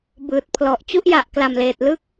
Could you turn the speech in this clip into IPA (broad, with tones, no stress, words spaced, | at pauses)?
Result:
bɯː˨˩t̚pʰlɔ˨˩ʔ t͡ɕu˥˩ʔja˨˩ʔkla˨˩mleː˨˩t̚ lɯ˦˥k̚